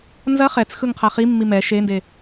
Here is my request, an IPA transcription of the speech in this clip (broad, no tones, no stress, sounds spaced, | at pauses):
n z ɐ χ ɛ t͡s x ɯ ŋ qʰ a χ i mː i m ɛ ʃ e n d e